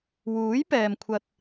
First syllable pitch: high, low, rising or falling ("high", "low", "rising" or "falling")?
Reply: rising